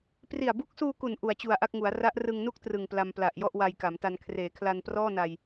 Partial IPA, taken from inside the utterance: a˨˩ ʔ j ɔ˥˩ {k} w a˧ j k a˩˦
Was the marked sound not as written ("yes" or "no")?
yes